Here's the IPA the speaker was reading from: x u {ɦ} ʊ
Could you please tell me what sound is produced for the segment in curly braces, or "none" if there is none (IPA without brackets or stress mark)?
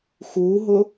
ɦ